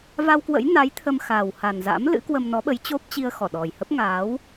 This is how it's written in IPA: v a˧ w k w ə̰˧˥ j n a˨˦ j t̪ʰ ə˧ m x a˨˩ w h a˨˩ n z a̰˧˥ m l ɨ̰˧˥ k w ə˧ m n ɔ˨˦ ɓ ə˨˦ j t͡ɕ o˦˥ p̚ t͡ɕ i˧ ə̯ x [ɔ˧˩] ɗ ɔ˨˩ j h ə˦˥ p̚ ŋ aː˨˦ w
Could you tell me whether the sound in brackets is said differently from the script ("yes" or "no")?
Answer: no